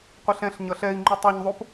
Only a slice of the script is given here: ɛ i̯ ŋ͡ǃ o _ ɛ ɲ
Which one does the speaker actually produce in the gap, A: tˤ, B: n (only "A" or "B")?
A